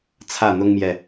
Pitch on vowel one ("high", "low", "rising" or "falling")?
falling